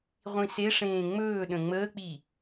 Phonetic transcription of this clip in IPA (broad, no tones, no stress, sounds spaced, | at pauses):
ʁʷ ĩ s e ʂ ẽː ŋ͡m ɵː ɗ ə̃ ŋ͡m əː k͡p i